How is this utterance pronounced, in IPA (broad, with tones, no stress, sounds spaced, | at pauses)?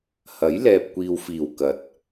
h ɐ˨˥ j l ɛː˨ p̚ kʷ iː˨ w f iː˨˩ w k ɐ˨˥ t̚